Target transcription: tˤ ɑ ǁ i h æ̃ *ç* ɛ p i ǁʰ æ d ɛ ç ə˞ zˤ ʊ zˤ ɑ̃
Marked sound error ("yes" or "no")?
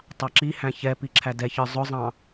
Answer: no